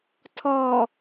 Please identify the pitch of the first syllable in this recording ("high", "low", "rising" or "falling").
low